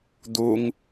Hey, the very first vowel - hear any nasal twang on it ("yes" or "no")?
no